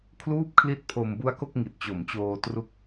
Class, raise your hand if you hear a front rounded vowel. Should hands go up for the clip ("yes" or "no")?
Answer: no